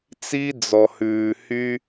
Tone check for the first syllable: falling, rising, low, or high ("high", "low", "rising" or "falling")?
high